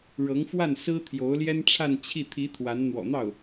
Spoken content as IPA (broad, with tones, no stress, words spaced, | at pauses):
ɻɤ˧˥ŋfwa˥˩n sɹ̩˥t̪ʰjo˧˥ʊ̯ljɛ˥nʈ͡ʂʰa˥˧n t͡ɕʰi˥˩ t̪ʰi˧˥ t̪ʰwa˧˥n n̪wɔ̰˨˩n̪ɑ˥˩ʊ̯